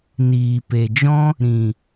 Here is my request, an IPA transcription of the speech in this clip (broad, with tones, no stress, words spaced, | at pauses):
niː˨pe˨d͡ʒɔ̃˦ | ɾĩ˨